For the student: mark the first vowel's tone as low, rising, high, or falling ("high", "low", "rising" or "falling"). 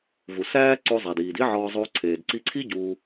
low